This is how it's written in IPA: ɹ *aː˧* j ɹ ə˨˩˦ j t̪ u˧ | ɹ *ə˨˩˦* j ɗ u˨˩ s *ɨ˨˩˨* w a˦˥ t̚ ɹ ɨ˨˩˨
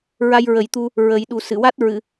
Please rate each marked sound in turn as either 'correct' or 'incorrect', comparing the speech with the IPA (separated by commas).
incorrect, correct, correct